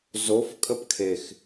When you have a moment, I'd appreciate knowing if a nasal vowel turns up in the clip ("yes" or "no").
no